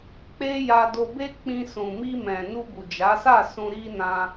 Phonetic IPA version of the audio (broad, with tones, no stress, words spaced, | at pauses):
k͡pe˦ja˧do˧ be˦k͡pĩ˧ sũ˨mi˧mɛ̃˨ nu˧bu˨d͡ʒa˨˦sa˦˨ sũ˧ɾi˦nã˧